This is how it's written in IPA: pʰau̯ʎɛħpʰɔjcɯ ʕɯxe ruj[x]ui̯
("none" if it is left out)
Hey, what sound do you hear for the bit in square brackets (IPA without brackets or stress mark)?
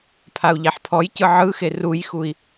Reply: x